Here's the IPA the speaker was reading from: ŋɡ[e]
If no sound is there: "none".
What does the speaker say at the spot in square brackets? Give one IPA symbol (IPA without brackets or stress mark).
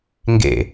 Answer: ḛ